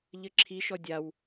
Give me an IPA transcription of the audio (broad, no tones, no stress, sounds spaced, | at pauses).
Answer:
ʎ ɘ ǁʰ i ʃ ɔ dʲ a w